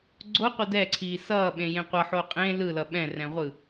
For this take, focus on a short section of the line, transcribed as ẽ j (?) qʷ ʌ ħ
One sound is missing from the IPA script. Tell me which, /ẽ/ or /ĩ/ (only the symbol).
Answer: ẽ